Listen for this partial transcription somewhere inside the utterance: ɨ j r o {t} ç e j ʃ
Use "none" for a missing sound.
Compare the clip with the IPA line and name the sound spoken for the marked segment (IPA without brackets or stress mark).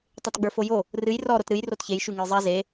t